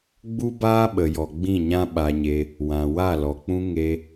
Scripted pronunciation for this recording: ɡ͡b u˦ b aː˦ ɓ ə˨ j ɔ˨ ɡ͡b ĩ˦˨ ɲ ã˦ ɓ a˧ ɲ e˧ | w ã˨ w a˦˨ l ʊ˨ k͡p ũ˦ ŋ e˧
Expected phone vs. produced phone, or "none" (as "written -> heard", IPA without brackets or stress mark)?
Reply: ʊ˨ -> ɔ˨